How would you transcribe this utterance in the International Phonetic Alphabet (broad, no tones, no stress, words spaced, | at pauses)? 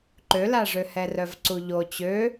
ǃølaʐø hɛrœvǀuʎo t͡ɕø